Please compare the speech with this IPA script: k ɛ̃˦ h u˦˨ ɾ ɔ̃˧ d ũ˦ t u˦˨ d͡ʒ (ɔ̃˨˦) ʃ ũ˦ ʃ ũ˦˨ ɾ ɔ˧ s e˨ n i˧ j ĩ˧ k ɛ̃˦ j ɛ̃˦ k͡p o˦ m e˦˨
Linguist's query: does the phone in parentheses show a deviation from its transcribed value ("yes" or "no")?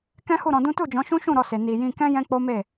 no